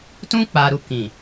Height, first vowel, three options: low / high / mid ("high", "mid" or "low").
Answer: high